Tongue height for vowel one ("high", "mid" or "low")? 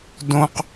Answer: mid